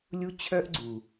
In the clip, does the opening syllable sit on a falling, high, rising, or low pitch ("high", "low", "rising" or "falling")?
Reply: high